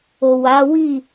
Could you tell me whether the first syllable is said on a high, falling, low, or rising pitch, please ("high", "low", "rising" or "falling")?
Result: low